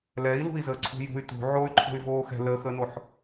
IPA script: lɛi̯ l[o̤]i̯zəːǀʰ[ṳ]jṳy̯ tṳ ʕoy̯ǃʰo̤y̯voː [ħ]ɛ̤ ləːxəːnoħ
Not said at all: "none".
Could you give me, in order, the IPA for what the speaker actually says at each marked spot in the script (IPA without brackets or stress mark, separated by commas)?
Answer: ṳ, ṳ, x